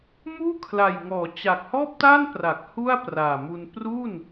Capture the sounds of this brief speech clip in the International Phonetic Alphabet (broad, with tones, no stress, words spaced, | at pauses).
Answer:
muː˥˩ kʰla˨˩jŋɔː˩˦t͡ɕa˨˩k̚ hɔː˥˩p̚taː˥˩npra˨˩k̚ hu˥˩a̯praː˨˩mu˧n pru˥˩n